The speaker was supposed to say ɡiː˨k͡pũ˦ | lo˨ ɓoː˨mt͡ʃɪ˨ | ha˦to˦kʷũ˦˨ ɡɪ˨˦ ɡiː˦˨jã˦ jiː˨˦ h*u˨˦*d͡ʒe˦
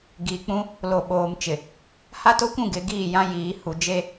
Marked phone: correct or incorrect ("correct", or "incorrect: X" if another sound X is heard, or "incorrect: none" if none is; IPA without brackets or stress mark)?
incorrect: u˨